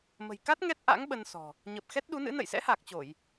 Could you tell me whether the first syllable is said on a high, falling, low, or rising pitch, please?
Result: low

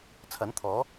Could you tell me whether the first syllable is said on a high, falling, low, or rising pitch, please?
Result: rising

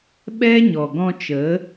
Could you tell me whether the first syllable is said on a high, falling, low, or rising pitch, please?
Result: high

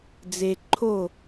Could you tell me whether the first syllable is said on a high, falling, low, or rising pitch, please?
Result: low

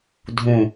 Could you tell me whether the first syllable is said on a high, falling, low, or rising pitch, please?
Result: low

